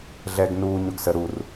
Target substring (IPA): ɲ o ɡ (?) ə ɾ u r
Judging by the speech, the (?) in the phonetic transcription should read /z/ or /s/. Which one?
s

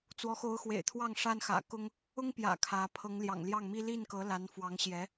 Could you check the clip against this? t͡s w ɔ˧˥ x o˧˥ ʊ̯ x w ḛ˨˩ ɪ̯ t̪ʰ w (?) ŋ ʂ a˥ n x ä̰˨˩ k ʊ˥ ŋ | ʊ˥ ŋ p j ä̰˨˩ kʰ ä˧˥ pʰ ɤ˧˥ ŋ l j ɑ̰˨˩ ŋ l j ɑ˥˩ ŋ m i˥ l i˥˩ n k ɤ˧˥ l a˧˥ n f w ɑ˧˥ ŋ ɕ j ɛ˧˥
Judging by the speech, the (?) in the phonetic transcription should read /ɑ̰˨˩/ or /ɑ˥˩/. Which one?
ɑ˥˩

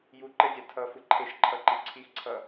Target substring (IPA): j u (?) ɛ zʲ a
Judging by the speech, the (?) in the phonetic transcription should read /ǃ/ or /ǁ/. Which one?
ǃ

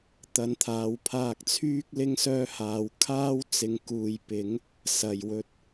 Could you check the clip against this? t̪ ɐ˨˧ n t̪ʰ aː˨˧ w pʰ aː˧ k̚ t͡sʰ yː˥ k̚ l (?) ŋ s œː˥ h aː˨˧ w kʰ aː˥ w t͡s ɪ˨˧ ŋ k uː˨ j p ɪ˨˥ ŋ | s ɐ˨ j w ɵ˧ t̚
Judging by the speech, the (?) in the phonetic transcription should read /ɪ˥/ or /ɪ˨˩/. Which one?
ɪ˥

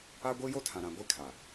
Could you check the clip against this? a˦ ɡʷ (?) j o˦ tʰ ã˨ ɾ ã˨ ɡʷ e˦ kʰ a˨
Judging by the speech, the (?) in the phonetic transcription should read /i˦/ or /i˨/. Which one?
i˦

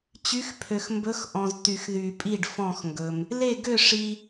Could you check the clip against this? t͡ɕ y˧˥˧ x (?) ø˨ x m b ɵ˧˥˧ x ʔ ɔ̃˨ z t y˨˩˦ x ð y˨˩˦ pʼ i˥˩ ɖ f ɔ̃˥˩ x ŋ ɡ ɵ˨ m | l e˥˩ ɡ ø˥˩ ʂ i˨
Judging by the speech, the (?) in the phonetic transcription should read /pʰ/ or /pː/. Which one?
pʰ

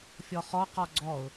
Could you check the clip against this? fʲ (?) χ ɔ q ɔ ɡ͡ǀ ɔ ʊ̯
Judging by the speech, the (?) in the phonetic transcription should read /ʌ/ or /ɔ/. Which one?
ɔ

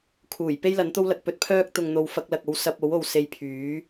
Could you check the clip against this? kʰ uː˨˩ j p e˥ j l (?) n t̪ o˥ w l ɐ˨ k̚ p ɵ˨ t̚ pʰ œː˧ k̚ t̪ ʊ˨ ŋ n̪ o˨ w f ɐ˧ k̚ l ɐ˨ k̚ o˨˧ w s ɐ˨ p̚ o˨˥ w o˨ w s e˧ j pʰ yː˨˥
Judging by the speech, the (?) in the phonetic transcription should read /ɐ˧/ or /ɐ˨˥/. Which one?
ɐ˨˥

